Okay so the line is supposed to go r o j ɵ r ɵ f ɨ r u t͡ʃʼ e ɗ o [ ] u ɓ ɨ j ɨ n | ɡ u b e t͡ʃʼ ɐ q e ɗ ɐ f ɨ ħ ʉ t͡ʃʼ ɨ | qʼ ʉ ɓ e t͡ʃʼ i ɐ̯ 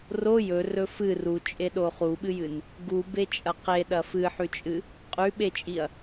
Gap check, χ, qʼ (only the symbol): χ